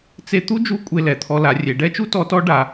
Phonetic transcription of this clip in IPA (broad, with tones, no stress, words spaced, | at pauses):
t͡se˥ t̪u˥d͡ʒu˧˥ kʷʼe˧lɛ˩t̪ʰɔ˧ la˩˧rʲe˩˧ɖɛ˥t͡ʃu˥ tɔ˧˥tɔ˧˥ɖa˩˧